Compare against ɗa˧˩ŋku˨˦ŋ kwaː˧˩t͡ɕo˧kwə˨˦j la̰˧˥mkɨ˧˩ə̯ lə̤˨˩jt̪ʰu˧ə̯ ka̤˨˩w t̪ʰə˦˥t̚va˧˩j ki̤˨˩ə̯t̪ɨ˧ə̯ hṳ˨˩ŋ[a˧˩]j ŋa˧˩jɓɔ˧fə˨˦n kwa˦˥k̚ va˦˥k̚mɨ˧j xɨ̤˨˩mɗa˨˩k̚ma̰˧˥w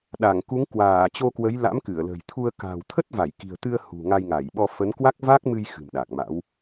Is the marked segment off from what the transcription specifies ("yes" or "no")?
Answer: yes